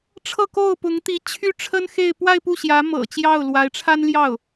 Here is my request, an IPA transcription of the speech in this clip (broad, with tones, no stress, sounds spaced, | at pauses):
ʈ͡ʂʰ ɤ˥˧ k o˥˩ ʊ̯ p ʊ˧˥ ŋ t̪ i˧˥ t͡ɕʰ y˥ ʈ͡ʂʰ ə˥ n x e˥˧ ɪ̯ p w a˥˧ ɪ̯ p u˥˩ ɕ j ä˧˥ m ɤ̰˨˩ t͡ɕ j ɑ˥˩ ʊ̯ l w a˧˥ ɪ̯ ʈ͡ʂʰ a˥ n l j ɑ˥˩ ʊ̯